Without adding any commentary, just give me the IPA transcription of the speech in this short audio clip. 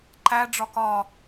ǃ æ ɖ͡ʐ ɒ k ɒ

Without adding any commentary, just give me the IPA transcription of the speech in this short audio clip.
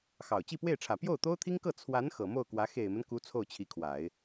x ɑ˨˩ ʊ̯ t͡ɕ i˥˧ p w e˥˩ ɪ̯ ʈ͡ʂʰ ä˨˩ p j o˥˩ ʊ̯ t̪ o˥ ʊ̯ t̪ʰ i˥ ŋ k ɤ˥˩ t͡sʰ w a˧˥ n x ɤ˨˩ m o˥˩ ʊ̯ k w ä˧˥ x e˨˩ ɪ̯ m ə˦ n k u˧˥ t͡sʰ o˥˩ ʊ̯ t͡ɕʰ i˧˥ kʰ w a˨˩˦ ɪ̯

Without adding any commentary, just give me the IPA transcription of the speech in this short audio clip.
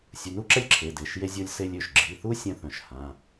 sʲ u˩˧˩ n u˦ ǁ ɛ˦ lʲ ǁʰ e˩˧˩ d e˩˧˩ ʃ j e˦ zʲ o˦ lʲ s e˦ lʲ ø˩˧˩ ʃ ɡ͡ǁ i˩˧˩ θ u˦ sʲ œ̃˦ θ œ̃˩˧˩ ʃ h ã˩˧˩

